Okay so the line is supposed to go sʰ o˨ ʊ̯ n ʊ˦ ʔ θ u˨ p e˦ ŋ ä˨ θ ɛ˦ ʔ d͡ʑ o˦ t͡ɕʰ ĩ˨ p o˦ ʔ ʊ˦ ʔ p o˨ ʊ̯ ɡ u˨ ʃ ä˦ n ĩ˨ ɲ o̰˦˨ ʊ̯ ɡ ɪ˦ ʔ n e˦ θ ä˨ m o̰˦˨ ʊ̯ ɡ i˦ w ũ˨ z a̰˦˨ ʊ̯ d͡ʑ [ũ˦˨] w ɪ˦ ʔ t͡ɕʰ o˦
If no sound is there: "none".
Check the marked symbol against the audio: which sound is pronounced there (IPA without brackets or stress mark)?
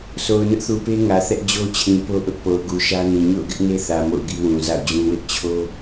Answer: ũ˦